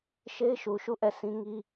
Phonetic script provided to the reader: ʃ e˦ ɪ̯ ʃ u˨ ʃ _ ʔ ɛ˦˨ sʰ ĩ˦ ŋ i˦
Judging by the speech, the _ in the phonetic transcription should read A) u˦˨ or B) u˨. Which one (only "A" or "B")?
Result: A